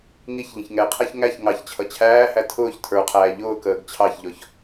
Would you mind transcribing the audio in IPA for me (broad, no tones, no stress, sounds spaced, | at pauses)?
ŋ i ç ʎ ə̃ ç ŋ ɛ qʰ æ ç ŋ æ ç ŋ ɑ ç t͡ɕʰ ʌ t͡ɕʰ æː h æ tʰ ʊː ç tʰ ə˞ qʰ æː ʎ ʊː k əː ɡ t͡ɕʰ ɑ ç ʎ ɔ ç